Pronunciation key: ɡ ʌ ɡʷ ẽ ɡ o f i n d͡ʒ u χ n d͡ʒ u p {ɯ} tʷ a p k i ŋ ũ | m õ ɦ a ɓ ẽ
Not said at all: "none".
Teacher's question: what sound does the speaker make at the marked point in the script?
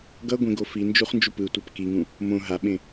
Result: ɯ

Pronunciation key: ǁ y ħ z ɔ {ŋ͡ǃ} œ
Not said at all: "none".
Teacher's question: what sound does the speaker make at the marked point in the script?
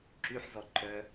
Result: ǃ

